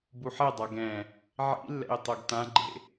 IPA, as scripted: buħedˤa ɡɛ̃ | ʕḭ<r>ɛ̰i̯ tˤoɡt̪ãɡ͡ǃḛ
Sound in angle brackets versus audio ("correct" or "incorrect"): incorrect